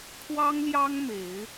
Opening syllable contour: high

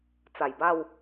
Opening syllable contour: low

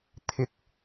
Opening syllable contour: low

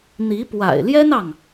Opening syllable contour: rising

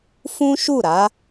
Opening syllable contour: high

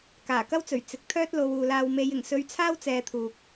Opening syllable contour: low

